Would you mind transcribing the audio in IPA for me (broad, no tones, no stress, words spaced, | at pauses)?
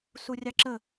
surʲɑǁə